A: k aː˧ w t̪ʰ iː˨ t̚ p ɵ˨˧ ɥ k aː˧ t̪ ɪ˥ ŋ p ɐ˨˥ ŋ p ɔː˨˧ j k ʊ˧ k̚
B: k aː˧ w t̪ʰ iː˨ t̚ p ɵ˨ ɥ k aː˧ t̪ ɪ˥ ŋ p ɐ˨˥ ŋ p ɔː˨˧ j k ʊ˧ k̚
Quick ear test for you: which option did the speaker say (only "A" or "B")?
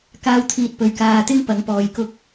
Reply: B